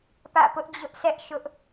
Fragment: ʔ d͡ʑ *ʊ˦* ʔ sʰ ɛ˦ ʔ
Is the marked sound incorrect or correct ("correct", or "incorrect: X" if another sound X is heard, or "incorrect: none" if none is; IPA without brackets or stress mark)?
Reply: correct